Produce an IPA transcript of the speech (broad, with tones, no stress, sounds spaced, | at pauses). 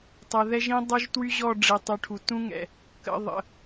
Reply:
tˤ ɛ˨ ð ɛ˦ ʒ ĩ˦ dˤ o˦ ʒ t w y˦ ʑ ɔ˦˨ ɖ͡ʐ i˨ tˤ y˨ ʈʰ u˨ t ũ˦ ŋ ɛ̰˨ | k ə̰˨ ðˤ ə̰˨